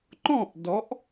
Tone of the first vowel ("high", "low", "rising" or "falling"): falling